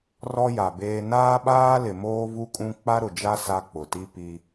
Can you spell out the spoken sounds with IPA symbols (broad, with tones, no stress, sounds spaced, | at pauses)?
r ɔ˦ j a˨ b eː˦ n aː˦ ɓ aː˦ l ɪ˨ m oː˦ v u˦ kʼ ũ˦ k͡p a˦ ɾ ʊ˨ d͡ʒ a˦ s a˦ k͡p ʊ˨ t i˦ p i˦